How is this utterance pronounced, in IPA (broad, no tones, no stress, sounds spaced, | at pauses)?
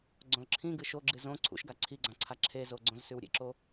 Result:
ɡ͡ǀ õ l ǁʰ ĩ ɡ ɨ ʃ o ɡ͡ǁ ɨ z õ ǀʰ ṵ ʃ ɡ a ǀʰ i ɡ͡ǀ ã ǀʰ a ǁʰ e z o ɡ͡ǀ õ z s ʉ w ɾʲ ḛ ǁ o